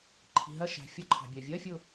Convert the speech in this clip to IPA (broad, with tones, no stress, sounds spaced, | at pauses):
ǃʰ i̤˩ ɦ ɜ˧˩ ʃ æ̤˩ fʲ ɒ˧ ǃʰ ɑ̤˩ bʲ ɜ˩ vʲ ɜ˧˥˧ fʲ ʊ˧˩